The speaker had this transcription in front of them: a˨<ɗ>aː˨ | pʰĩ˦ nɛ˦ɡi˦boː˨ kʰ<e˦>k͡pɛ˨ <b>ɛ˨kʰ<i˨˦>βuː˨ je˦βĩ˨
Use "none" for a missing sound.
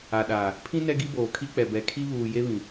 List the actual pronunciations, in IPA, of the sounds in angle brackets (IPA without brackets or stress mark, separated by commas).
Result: ɗ, i˦, b, i˦